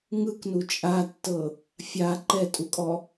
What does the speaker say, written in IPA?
ŋ ɯ k n u t͡ʃʼ a tː ɤ | fʲ a ǃ ɛ tʼ u kʼ ɔ

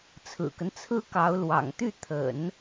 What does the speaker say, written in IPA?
t͡sʰ ɹ̩˨˩ k ə˦ n t͡sʰ ɹ̩˥ k ɑ˧˥ ʊ̯ l w ɑ̰˨˩ ŋ t̪ y˥˩ t̪ʰ ə̰˨˩˦ n

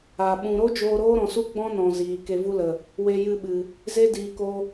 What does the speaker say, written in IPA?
a˨ ɓ ũ˨ ɾ o˦ d͡ʒ oː˧ ɾ oː˦ ɾ ɔ̃˨ s u˦ ɡ͡b ɔ̃˦ n ɔ̃˨ z iː˨ k e˧ v u˦ l ə˨ | w e˧ j ɨ˧ ɓ ɨ˨ | z e˦ d iː˨ k o˧

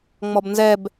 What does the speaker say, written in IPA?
ŋ͡m ɔ b n z ɛ b

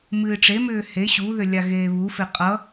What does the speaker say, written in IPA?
m ɨː ʈ͡ʂ e m ʏː h e ɕ u ð ʏ lʲ a ɣ eː β u f e qʼ ʌ

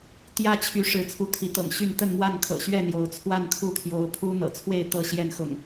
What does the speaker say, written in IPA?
t̪ j ä˦ t͡ɕʰ y˨˦ ʂ ɻ̩˨˦ t͡sʰ u˨˦ t̪ʰ i˨˦ t̪ ɤ̰˨˩ ŋ ɕ y˥˨ n t̪ ə˥˨ n m w a˥˨ n kʰ ɤ̰˨˩ ɕ ɥ ɛ˥˨ n̪ j o˨˦ ʊ̯ t͡sʰ w a˥˨ n kʰ u˥˨ t̪ʰ j o˨˦ ʊ̯ pʰ u˦ n̪ ɤ̰˨˩ t͡sʰ w e˥˨ ɪ̯ t̪ ɤ˥˨ ɕ j ɛ˥˨ n x ʊ̰˨˩ ŋ

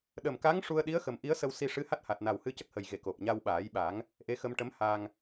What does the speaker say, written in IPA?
ɗ ə˨˩ m k a˧˥ ŋ ʂ u˧ ə̯ ɗ i˧˥ ə̯ x ə˨˩ m ʔ i˧˥ ə̯ s ə˧ w s i˧ ʂ ɨ˧˥ h a˦˥ t̚ h a˨˩ t̚ n a˨˩ w h ɨ˧ c ə˦˥ k̚ h ə˨˩ j ɣ e˨˩˨ k o˨˩ p̚ ɲ a˧ w ɓ aː˨˩˦ j ɓ a˨˩˦ ŋ | ʔ e˧ x ə˧ m ʈ ə˧˥ m h a˧ ŋ

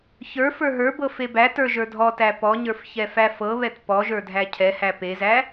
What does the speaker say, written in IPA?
ç ə˞ f ə˞ ɦ ə˞ b ɤ f e b æ t ə˞ ʒ ə˞ dʱ ɔ t æ p ɔ ɲ ə˞ f ç ɛ f æ f ɤ β ɛ t p ɔ ʒ ə˞ dʱ æ cʰ ɛ h æ p e z æ

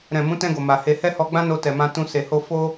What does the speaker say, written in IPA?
ɾ ɛ̃˨ m ũ˨˦ t ɛ̃˧ ɡ o˨ m a˨ h e˧ h ɛ˦ h ɔ˧ ɡ͡b ã˦ n o˧ t ɛ˨ m ã˧ t ũ˧ s e˨ h o˧ f o˦

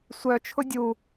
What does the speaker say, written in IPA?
sʷ œ t͡ʃʰ ʊ dʲ u

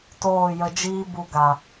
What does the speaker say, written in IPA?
t oː˦˨ j ə˧ d͡ʒ iː˦ b u˧ ɡ a˨

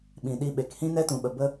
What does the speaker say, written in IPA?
ɓ ĩ˨ ɗ i˧ ɓ e˨ k h ĩ˦ n ɛ˦ t ũ˨ ɓ ə˨ b ə˦

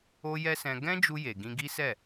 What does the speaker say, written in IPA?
o˦ j ɛ˦ s ɛ̃˧ ɡ ɛ̃˦ d͡ʒ u˧ j e˨ ɡ ĩ˧ ɡ i˦ s ɛ˦˨

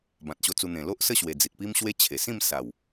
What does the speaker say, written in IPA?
b ã˨ t̚ ɕ o˧ t͡s u˧ n̪ ẽ˨˩ l o˦ ʔ s ə˥˧ ɕ w e˨˩ d͡z i˨ t̚ p i˦ m ɕ w e˦ t͡ɕʰ e˨˩ s ĩ˥˧ m s a˨˩ w

